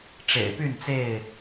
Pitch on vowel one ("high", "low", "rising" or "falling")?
low